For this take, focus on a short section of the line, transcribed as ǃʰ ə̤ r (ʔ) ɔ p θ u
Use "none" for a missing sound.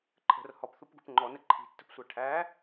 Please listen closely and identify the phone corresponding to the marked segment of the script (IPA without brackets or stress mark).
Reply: h